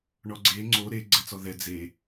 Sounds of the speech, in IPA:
ɳ ɔ ɡ͡ǀ e ŋ͡ǀ o ɾ e ɡ͡ǀ ɛ t͡s ɔ ð ɛ d͡z e

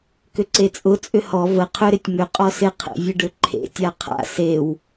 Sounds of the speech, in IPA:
k ʏ ǀ e t͡sʼ ʊ t͡sʼ ʏ h ɔ v ə qʰ ʏ ɾ ɪ tʲ m ʏ qʼ ɔ s ɪ qʰ ḛ vʲ ə ɖ ʏ ǃʰ ḛ tʲ a qʰ a̰ s e w

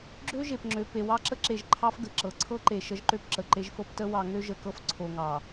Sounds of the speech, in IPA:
ɡ͡ǁ ø˦ ʒ e˨ p ŋ͡ǁ ø˨ p e˨ w ɑ˦ ǁ ə˦ ǁ e˨ ʒ ǃʰ ɑ˦ f ɡ ə˨ ǁ ɤ˨ ǀʰ ɤ˦ ǃ e˨ ʃ ə˦ ʒ ǃ ø˦ p ǁ ə˨ ǃ e˦ ʒ f ɤ˦ p t ə˦ w ɑ˨ ŋ ø˦ ʒ ə˨ k ɤ˦ f ǀʰ o˨ ŋ ɑ˨

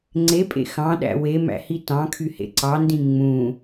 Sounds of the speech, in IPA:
ŋ͡ǀ e pʼ ḛ x ɑ̃ ɗ æ̰ w e m æ̰ h i t ɑ̃ kʰ y h ḛ ǀ ɑ n d ĩ ŋ͡m ũ

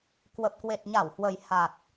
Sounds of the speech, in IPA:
k w ə˨˩ p̚ k w e˨˩ t̚ ɲ a˧˩ w h w ə˨˩ j h a˨˩ t̚

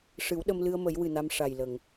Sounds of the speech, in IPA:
ʂ ɨ˨˩˦ w ɗ ə˧ m l ɨ˧ ə̯ m ə˨˩˦ j w ɨ˨˩ n a˧ m ʂ a˨˩ j l ə˨˩˨ ŋ

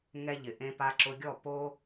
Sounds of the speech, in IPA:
ŋ ɛ˧ ʎ ɪ˩ ʔ ẽ˧ p a˧ ǁ ʊ˧ ɡʲ ɔ˥˩ p o˥

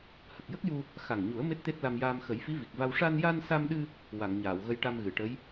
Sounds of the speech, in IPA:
h ə˨˩ k̚ j ə˦˥ k̚ j u˧ | x a˨˩ ŋ ɲ u˨˩˦ ə̯ m e˦˥ t̚ t̪ e˦˥ t̚ l a˧ m j aː˧ m x ə˨˩˦ j f i˧˥ v i˨˩ k̚ v a˧ w ʂ a˧ n j a˧ n s a˧ m ɗ ɨ˧ | w a˨˩˨ ŋ ɲ aː˨˩˨ w ɣ ə˧ j ʈ a˧ m ɣ ɨ˨˩˨ ʈ ə˧˥ j

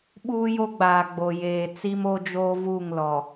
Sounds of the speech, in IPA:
ɓ uː˦ j o˦ ɡ͡b aː˨ ɡ͡b o˨ j eː˨ t͡s i˦ m o˦ d͡ʒ oː˦ v uː˦˨ ŋ l ɔ˨

